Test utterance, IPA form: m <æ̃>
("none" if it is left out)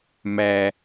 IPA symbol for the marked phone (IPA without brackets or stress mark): æ